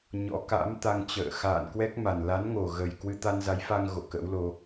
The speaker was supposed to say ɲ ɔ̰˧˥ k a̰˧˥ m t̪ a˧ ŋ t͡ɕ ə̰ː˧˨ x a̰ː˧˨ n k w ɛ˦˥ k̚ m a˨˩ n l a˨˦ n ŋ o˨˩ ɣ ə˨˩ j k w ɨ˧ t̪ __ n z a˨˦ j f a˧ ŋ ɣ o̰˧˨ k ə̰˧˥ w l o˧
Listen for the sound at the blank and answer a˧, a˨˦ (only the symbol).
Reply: a˧